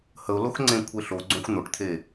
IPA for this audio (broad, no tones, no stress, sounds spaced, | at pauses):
h ə ʊ̯ l o x ŋ͡ǀ ẽ kʷʰ e ɬ o ɡ͡ǀ õ xʷ n̪ o ʈ t̪ʰ e